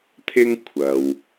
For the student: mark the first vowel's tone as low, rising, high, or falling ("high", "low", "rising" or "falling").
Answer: high